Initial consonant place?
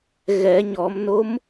velar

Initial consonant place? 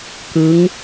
velar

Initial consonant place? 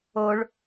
retroflex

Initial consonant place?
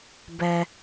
labial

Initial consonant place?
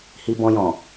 glottal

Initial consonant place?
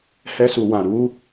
glottal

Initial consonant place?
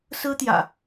alveolar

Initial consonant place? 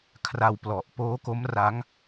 velar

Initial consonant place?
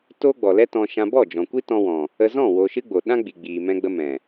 alveolar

